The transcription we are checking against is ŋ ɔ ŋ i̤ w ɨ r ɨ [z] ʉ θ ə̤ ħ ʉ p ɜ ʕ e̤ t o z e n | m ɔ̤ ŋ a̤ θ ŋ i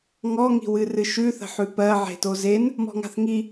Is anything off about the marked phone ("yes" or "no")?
yes